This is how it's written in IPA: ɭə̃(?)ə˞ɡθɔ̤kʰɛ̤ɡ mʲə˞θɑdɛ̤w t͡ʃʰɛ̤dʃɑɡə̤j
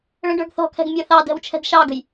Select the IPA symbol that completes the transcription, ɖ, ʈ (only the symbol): ɖ